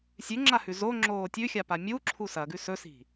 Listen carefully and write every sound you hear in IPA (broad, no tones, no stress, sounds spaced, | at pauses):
sʲ ʉ ŋ͡ǁ a h ʉ z o ŋ͡ǁ oː tʲ ʉ xʲ a p a mʲ u ǁʰ u s ɐ ɡ ʉ s ɵ s i̤